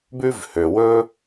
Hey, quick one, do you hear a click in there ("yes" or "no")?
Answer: no